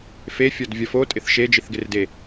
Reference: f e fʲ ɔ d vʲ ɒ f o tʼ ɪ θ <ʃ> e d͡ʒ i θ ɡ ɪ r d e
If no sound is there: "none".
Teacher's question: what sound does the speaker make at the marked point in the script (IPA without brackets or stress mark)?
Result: ʃ